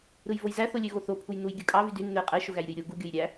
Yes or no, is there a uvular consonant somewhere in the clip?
yes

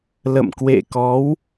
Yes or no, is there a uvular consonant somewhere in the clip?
no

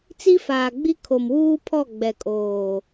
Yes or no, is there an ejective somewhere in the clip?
yes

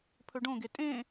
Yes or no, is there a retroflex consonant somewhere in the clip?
yes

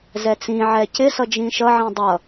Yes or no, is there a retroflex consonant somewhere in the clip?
no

